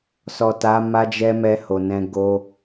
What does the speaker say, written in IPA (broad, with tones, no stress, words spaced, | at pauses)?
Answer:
sɔ˨ta˨˦ ma˧d͡ʒɛ˧ mɛ˧ho˨nɛ̃˧ ɡo˧